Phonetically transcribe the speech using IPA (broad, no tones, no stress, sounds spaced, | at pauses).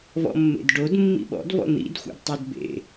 v ɔ̰ mː ḛ d ɖ o d mː ḭ ɓ ɔ̰ d v ɔ̰ n̪ ḭ d xʷ æ̰ d tˤ o d b ḛ